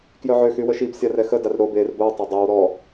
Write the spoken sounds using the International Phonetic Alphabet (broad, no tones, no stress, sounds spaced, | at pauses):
k j œ ʕ ø x y w ə ʃ i b sʲ a r ɛ x ə d a r ɾ o b e r b o w tˤ a dˤ o w ɾ ɔ